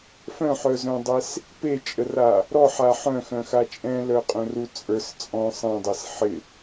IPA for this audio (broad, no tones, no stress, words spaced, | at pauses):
fœ̃ħœzœ̃dˤes | pet͡ʃʼəra | ɾɔħa ħœ̃xœ̃xa t͡ʃʼɛ̃lœqʼœ̃ru t͡sʼə˞s t͡sʼɔ̃ sˤɛ̃dˤes ħɪ